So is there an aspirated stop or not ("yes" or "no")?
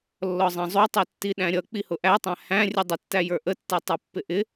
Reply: no